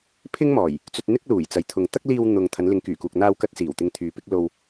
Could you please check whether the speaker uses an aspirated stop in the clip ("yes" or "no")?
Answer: yes